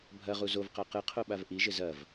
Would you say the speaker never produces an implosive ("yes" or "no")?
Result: no